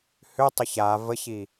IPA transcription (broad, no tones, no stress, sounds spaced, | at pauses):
h ʏ tˤ ʏ ç a v ə ç i